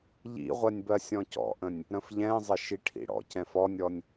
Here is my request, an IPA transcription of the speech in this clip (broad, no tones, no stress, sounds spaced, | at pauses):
ʎ ḭ ʁʷ ɜ nʲ b ɜ sʲ ɔ̃ c ɔ̰ ʔ ə̃ nʲ | ɾ ə̃ f ʎ ɛ̃ zˤ ɪ ʃ i ʈʰ ḭ ɽ ɔ̰ c ɛ̃ f ɔ nʲ ɔ nʲ